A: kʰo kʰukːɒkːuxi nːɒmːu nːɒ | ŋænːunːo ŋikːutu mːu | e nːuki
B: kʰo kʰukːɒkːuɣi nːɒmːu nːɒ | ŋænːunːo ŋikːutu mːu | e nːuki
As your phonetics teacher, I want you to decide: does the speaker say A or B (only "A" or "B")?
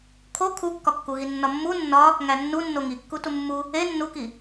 B